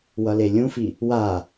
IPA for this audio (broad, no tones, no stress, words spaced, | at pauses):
wʌlelʲũfi | wa